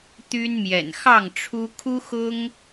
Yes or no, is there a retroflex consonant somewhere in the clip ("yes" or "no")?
yes